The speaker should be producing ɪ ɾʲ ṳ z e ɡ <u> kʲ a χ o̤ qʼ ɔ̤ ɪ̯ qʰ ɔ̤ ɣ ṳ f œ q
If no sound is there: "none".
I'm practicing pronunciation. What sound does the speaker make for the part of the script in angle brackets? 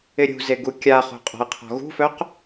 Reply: u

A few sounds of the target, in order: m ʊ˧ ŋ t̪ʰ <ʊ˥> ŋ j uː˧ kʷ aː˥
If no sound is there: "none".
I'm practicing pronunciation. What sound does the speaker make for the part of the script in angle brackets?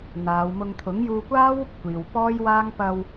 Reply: ʊ˨˥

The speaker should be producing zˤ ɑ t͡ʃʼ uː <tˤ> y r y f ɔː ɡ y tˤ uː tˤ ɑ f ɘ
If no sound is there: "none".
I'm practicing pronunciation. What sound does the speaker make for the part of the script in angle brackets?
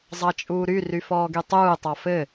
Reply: ɾ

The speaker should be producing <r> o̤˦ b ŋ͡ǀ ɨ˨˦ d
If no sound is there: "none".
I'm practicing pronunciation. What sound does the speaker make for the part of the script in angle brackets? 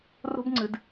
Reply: r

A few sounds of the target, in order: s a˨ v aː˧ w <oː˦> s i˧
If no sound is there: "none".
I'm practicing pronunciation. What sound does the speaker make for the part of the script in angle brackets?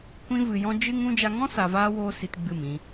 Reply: oː˦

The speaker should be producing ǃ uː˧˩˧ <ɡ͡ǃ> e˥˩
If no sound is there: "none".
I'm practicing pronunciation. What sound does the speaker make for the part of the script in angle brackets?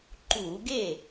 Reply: ɡ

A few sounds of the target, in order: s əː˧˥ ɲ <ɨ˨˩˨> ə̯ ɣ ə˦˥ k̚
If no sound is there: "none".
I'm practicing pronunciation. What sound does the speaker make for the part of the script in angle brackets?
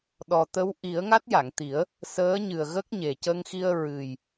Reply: ɨ˨˩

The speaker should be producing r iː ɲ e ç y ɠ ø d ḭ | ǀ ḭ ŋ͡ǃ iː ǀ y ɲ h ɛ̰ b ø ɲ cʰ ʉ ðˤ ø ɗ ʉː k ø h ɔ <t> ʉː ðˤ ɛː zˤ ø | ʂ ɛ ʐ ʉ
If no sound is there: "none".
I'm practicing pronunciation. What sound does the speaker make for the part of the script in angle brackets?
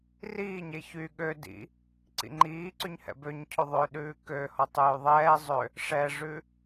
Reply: tˤ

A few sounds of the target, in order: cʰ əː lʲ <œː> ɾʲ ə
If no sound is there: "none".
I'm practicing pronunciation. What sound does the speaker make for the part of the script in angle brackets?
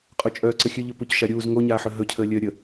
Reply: œː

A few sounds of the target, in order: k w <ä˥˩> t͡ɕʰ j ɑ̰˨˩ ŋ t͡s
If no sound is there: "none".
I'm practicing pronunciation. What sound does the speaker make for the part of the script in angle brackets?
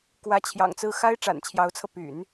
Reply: ä˧˥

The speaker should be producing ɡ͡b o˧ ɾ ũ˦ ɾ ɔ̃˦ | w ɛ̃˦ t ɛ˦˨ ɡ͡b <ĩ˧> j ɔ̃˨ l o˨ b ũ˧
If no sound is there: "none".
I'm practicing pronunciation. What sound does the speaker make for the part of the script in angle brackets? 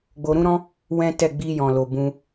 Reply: i˧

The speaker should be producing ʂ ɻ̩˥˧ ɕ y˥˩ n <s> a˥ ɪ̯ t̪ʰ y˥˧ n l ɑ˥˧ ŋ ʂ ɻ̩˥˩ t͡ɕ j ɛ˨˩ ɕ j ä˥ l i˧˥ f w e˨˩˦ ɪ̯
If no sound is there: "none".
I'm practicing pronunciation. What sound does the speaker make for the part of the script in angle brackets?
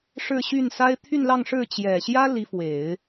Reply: s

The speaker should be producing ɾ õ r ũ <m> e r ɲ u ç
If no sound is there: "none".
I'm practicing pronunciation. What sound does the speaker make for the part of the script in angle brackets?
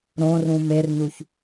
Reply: m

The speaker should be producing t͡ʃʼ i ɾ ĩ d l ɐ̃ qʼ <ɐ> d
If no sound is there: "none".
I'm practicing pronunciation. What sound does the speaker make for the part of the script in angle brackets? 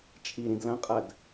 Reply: ɐ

